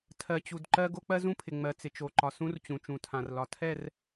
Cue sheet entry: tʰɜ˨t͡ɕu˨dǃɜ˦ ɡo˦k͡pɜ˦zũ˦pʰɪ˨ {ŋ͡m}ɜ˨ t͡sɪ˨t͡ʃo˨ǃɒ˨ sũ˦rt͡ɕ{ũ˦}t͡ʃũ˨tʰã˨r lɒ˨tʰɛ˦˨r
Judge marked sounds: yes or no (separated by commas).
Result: yes, no